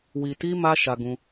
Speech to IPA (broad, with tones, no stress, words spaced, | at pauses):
wi˨ti˧ ma˦ ʃa˧ɡũ˧